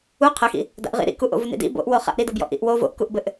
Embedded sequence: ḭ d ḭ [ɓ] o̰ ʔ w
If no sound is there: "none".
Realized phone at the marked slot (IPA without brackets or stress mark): b